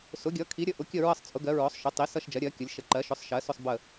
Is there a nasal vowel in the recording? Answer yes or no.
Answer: no